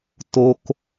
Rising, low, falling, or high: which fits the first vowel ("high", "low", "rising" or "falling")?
high